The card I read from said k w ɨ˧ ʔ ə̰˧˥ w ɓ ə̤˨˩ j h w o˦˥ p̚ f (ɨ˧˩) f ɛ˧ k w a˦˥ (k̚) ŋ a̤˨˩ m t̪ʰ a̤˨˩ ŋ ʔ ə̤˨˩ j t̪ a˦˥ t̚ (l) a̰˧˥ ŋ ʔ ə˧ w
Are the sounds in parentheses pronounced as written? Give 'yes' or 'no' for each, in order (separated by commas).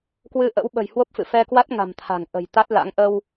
no, no, yes